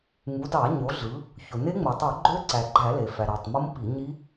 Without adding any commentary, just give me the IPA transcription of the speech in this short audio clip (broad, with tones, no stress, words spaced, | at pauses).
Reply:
ŋu˩˧ dɑ˧˩˧ɲo˩˧ɮɯ˩˧ | ço˩ne˦˥ŋ͡mo˩tˤu˧˩˧ ɡ͡ǃø˦˥ǀæ˩ɡ͡ǃæ˧˩˧ le˩fæ˩ɾɑ˩tˤ mo˦˥mpi˧˩˧ɲi˦˥